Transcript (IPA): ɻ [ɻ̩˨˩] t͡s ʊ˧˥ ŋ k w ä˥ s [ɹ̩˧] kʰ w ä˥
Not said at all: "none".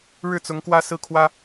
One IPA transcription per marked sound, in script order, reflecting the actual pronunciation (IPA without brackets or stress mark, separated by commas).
ɻ̩˥˩, ɹ̩˥˩